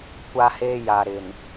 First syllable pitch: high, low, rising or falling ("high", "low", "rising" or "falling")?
high